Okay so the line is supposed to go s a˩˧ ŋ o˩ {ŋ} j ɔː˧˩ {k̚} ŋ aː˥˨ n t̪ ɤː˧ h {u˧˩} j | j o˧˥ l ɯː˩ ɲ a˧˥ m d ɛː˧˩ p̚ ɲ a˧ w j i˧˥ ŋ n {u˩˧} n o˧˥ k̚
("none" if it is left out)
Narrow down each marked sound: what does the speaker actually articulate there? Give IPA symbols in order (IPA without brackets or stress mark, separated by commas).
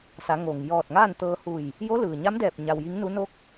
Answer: ŋ, t̚, u˧˩, u˧˥